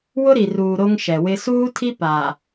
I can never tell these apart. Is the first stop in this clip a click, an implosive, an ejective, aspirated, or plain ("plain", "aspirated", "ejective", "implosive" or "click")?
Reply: aspirated